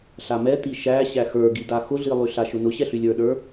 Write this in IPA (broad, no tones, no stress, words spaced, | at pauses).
ɬamɛti ʃæ ɕæxə˞ɡida xʊɮilˠy ɬaʃʊnʊ ɕɛɬylʲə˞ɗə˞